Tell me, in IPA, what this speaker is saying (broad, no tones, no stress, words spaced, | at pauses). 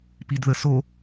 pidðəso